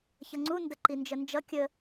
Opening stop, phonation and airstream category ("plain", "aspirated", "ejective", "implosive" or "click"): click